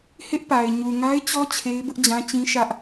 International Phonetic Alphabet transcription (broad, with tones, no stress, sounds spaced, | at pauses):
h ɪ˦ ʔ p a˨ ɪ̯ ɲ u˨ ŋ a˦ ɪ̯ t͡ɕ ɔ˦ t͡ɕʰ e˦ ɪ̯ b ʊ˦ ʔ d͡ʑ ã˦ t͡ɕ ĩ˦ ʃ ä˦ ʔ